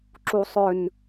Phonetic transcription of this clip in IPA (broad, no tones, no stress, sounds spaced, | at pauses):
ǁ u sˤ ʏ n